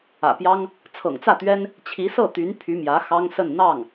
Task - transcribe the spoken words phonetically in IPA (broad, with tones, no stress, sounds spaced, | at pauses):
ä̰˨˩ p j ɑ˥ ŋ | t͡sʰ ɤ̰˨˩ ŋ t͡s ä˥˩ t̪ ɥ ɛ˥ n | t͡ɕʰ i˧˥ s ɤ˥˩ t̪ y˧˥ n pʰ y˧˥ m j ä˧˥ x ɑ˥ ŋ s ə˥˧ n n̪ ɑ˥˩ ŋ